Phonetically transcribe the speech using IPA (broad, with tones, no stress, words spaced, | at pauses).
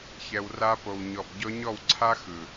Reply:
çɛ˨w ra˧po˨w ɲɔ˨b ɟɔ˧ɲɔ˦˨wǀʰa˦ xɯ˨